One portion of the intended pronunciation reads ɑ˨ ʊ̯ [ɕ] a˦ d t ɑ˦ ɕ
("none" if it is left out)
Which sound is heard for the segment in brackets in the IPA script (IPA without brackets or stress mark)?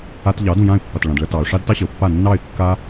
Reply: ʂ